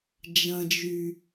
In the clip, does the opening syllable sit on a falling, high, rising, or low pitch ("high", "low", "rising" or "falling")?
low